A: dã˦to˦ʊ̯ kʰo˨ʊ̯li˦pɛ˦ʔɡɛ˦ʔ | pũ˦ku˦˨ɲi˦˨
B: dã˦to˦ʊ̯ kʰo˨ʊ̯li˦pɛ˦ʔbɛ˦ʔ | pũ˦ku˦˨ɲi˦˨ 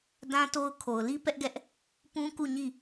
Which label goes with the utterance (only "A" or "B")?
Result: A